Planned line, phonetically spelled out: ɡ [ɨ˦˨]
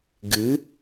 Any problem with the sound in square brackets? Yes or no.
yes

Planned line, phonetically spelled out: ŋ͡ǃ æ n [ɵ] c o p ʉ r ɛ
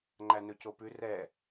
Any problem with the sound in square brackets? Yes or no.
no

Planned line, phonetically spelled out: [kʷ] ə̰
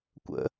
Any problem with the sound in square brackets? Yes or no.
no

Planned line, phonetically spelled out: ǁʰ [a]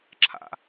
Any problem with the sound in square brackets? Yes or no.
yes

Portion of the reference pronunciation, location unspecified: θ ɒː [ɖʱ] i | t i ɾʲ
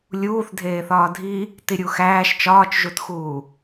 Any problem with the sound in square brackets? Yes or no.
yes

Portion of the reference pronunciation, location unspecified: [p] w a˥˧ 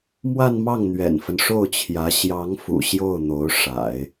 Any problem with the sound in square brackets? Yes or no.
yes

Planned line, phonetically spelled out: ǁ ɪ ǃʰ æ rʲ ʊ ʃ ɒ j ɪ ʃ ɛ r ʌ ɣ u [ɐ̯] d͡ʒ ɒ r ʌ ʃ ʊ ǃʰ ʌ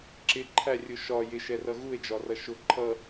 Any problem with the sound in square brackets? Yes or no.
yes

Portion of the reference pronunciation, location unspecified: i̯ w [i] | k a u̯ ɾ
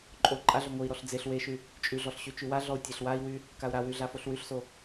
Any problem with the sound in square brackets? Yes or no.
yes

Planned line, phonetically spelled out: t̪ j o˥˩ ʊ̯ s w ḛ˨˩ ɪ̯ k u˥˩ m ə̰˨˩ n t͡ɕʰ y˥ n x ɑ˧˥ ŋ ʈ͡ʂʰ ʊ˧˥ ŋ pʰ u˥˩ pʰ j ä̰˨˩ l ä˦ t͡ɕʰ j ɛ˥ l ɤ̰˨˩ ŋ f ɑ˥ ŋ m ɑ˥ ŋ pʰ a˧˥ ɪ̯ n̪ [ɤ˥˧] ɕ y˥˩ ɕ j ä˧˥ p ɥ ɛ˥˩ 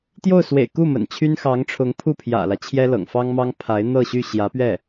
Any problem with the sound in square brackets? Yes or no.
no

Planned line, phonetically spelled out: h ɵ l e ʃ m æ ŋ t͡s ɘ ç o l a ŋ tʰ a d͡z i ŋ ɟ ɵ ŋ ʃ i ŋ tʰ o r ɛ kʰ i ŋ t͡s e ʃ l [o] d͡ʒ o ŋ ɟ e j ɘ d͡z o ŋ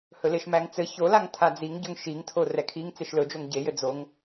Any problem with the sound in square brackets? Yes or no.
yes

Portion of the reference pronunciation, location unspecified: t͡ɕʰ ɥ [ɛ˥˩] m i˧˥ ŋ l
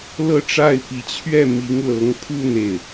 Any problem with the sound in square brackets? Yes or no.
no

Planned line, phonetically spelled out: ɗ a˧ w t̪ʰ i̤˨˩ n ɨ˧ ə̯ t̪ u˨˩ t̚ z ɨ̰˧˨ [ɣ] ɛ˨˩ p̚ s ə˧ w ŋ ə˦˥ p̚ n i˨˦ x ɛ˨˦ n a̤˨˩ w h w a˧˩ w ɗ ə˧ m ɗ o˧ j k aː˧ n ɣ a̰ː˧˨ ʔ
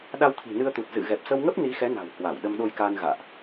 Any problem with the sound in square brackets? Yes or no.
no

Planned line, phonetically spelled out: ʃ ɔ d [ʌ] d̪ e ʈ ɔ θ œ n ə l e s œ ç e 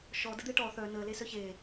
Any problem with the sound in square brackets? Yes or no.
yes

